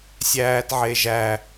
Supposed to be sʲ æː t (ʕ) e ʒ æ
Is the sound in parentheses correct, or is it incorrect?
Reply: correct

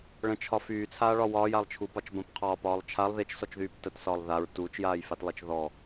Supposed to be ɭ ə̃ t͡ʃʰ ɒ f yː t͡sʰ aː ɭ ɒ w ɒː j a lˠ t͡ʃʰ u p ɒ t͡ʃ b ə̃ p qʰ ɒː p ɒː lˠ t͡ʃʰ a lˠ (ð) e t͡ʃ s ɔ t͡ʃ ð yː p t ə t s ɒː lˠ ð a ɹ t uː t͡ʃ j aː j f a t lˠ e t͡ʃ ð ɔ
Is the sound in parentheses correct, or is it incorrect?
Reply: correct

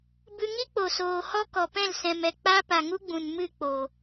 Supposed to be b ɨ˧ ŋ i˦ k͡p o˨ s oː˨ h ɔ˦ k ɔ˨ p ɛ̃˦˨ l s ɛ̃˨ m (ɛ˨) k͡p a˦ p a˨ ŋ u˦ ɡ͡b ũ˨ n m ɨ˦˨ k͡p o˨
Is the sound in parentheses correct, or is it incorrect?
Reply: correct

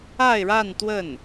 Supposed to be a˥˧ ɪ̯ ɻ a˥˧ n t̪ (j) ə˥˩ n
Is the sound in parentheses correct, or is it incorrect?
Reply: incorrect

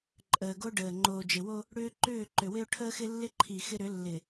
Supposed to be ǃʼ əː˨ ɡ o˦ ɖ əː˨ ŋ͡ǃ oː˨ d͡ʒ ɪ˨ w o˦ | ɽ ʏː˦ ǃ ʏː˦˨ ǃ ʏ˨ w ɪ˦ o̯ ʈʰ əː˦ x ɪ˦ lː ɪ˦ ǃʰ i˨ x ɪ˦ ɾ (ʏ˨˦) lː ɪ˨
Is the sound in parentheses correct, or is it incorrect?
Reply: correct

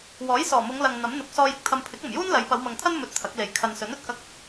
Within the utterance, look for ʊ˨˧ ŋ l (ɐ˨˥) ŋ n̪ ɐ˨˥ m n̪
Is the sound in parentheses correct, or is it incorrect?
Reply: incorrect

